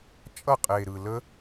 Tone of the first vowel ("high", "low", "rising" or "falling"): falling